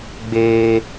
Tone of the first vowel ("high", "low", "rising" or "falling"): high